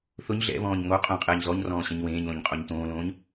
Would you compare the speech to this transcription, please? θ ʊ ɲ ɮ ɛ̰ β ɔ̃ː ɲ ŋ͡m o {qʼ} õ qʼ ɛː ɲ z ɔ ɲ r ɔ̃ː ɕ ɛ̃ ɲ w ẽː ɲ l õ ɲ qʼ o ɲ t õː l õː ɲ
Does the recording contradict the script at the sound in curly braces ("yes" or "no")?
no